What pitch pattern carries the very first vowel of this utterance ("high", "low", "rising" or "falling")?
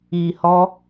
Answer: low